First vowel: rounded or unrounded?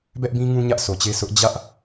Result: unrounded